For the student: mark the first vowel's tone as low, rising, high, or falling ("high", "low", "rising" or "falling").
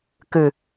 low